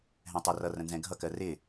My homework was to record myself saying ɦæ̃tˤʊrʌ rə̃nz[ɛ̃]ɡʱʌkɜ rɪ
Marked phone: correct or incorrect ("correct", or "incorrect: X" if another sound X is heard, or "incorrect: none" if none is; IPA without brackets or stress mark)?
correct